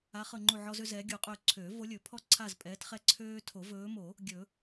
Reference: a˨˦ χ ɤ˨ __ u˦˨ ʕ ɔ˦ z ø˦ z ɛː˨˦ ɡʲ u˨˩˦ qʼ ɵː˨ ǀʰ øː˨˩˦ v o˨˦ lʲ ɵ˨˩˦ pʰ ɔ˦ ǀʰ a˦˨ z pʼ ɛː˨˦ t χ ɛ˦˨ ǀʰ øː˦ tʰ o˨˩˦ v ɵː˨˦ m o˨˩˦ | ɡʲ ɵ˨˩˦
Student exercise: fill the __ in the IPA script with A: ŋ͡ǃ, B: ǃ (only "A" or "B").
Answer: A